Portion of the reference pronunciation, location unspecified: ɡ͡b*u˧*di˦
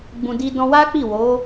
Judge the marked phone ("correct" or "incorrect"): incorrect